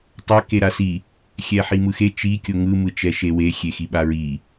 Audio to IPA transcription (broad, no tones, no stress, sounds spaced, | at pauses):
tˤ a k e ɾ a s i | xʲ ɛ ħ i m ɯ x e t͡ʃ i kʲ o ŋ ɯ m ɯ t͡ʃ ɛ ʃ e w e xʲ e x i ɓ a ɹ i